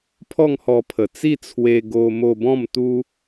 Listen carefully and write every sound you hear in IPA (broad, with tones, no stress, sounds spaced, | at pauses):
pʰ ɔ˥˧ ŋ h ɔ˧ pʰ ə˨˩ t͡s i˥˧ t͡sʰ w e˧ ɡ o˧ m o˧ b ɔ̃˥˧ m t̪ u˦